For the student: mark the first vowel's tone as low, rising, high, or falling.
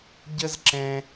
high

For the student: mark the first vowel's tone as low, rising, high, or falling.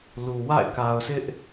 low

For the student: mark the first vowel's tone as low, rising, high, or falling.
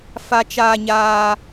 high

